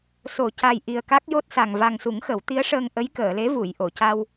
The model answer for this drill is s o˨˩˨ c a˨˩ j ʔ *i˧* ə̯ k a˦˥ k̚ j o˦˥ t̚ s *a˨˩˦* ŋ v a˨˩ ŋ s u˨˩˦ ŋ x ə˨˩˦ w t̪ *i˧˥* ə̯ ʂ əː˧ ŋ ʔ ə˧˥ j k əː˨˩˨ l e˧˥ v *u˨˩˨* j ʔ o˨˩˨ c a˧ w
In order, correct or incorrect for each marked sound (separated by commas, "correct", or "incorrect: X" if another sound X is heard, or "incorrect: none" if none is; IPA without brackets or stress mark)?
incorrect: i˨˩, incorrect: a˨˩, correct, correct